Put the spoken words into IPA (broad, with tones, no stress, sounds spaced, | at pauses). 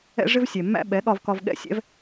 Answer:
ɛ̰˦ ʐ ɪ˦ v sʲ ɛ˨ mː æ̰˦ ɓ ɛ˨˦ ɠ ɒ˧ v k ɒ˧ v ɠ ɛ̰˦ sʲ ɛ̰˦ v